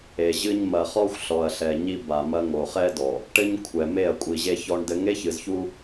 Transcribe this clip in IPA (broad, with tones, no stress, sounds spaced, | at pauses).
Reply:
e˨ ʑ ɨ˦ ɲ m ɐ˨ χ ɔ˦ xʷ ɬ ɔ˨ ɐ̯ ɬ ɛ˨ ɲ i˦ b a˨ m ɐ˦ ŋ o˨ χ ɛ˦ d ɔ˨ | ʈ ɘ˦ ɲ kʷʰ ɛ˨ m e˦˨ ɐ̯ kʷʼ i˨ ʑ e˦ ç ɔ˦ ɳ d ɘ˦ ŋ e˦ ç ɨ˨ z ç u˦